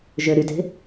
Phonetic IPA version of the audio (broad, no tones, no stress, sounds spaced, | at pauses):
ʒ ø ɾ y t e̤